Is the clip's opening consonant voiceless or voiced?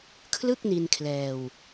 voiceless